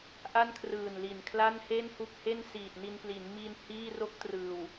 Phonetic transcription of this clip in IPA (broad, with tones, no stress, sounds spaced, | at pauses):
ʔ a˥˩ n kʰ r ɯː˨˩ n l i˨˩ n kʰ l a˥˩ n h e˥˩ n h u˥˩ k̚ h e˥˩ n s iː˨˩ t̚ n i˧ n p l i˩˦ n m i˧ n h iː˥˩ r o˥˩ k̚ t r ɯː˨˩ w